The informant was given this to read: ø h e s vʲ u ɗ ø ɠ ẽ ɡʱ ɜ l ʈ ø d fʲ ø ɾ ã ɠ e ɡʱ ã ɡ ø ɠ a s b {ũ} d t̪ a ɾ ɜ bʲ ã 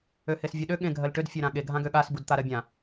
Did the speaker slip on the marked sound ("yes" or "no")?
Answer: yes